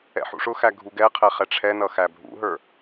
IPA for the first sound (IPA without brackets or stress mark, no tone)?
ɛ̰